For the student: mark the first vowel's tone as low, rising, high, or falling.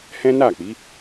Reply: high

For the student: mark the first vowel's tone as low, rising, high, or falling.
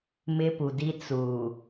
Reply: high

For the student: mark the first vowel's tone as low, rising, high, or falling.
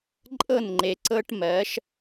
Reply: falling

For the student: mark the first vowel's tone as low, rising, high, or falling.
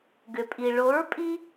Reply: low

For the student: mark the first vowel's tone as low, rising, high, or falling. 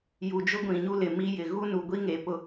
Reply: low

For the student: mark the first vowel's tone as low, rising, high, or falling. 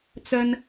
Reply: high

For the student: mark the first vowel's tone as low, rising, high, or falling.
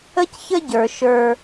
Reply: high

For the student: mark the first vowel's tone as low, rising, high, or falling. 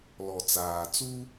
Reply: low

